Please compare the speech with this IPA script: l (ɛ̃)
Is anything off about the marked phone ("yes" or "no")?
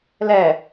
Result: yes